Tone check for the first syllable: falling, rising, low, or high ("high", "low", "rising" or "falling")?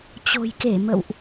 low